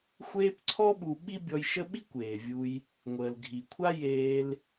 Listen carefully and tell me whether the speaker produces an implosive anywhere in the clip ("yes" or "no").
yes